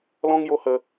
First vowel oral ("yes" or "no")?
no